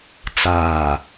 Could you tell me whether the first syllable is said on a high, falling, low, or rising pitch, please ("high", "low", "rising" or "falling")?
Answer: low